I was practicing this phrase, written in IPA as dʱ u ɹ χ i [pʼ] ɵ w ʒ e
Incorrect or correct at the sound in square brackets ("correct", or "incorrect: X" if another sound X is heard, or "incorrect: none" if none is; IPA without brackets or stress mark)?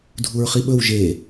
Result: incorrect: ɓ